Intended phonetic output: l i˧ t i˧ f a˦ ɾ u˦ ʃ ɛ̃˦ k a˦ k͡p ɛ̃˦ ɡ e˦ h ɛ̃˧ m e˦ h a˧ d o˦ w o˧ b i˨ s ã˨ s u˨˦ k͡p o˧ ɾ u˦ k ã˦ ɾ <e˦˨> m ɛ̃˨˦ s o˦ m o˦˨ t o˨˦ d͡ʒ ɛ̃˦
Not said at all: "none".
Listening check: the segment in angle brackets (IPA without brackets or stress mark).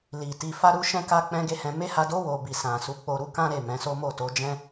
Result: e˦˨